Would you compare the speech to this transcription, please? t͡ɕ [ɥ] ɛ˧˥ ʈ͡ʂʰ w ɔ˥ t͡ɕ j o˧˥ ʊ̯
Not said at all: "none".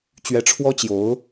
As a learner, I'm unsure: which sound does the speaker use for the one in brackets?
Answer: ɥ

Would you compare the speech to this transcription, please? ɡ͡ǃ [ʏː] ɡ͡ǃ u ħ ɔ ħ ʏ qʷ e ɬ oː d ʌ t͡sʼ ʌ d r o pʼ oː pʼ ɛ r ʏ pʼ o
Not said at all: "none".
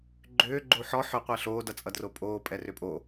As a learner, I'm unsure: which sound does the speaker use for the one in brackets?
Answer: ʏː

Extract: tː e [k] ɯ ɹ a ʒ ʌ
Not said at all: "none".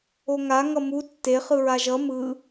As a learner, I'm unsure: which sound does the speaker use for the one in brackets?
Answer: χ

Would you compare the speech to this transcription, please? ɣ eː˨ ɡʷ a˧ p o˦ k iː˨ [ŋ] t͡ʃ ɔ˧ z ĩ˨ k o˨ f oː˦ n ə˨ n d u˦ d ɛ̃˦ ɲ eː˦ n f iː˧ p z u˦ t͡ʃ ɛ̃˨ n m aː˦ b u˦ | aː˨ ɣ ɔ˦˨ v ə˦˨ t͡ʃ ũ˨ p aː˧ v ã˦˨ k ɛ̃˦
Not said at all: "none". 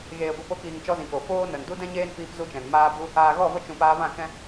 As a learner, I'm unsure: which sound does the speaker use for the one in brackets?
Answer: ŋ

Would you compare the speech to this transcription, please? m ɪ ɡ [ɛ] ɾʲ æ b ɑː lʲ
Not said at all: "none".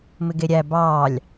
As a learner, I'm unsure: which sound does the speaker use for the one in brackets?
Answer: e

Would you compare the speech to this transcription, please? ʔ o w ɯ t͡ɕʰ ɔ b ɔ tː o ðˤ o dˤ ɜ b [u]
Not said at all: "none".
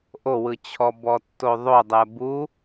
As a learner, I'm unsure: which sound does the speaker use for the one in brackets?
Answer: u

